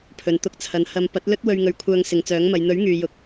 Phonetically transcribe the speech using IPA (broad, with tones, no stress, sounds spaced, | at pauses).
pʰ ɵ˨ n t̪ ʊ˧ k̚ t͡sʰ ɐ˨˧ n h ɐ˧ m p ɐ˨˥ t̚ l ɵ˥ t̚ w ɵ˧ ɥ ŋ ɵ˨˧ ɥ kʷʰ œː˧ ŋ s ɪ˨ ŋ t͡s œː˨˥ ŋ m ɐ˨˧ j n̪ ɵ˨˥ ɥ ŋ yː˨ j ʊ˨ k̚